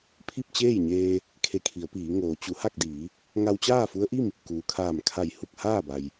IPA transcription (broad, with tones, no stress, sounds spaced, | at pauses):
pʰ i˥˨ p̚ t͡ɕ eː˥˨ j ɲ eː˧ | kʰ e˧ kʰ i˩˧ ə̯ p iː˩˧ ŋ oː˩˧ t͡ɕ u˩˧ h a˥˨ k̚ d iː˩˧ | ŋ a˧ w t͡ɕ aː˥˨ f u˧˥ ə̯ ʔ i˥˨ m | k uː˩ kʰ aː˧˩ m kʰ a˧˩ j h u˥˨ k̚ h aː˥˨ b a˩ j